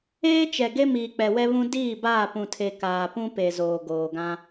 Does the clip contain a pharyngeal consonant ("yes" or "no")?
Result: no